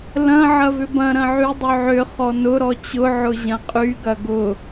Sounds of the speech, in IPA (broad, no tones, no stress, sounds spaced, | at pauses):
l ɐ̃ ʕ ɐ v ʏ b ɐ̃ ɾ ɐ̃ ʕ y dˤ ʏ ʕ ʏ χ ɔ n ʊ ɾ ɔ t͡ɕ ʊ ʕ ʊ ʑ ɐ̃ qʼ y ɡ ɐ ɡ ʊ